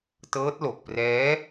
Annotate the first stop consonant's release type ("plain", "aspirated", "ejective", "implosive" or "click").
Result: plain